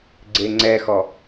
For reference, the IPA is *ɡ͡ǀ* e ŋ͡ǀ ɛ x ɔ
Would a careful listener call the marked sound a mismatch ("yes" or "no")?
no